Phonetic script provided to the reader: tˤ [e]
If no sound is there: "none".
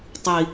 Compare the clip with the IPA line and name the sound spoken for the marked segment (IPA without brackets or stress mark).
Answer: i